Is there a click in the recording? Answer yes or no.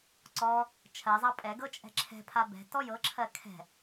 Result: yes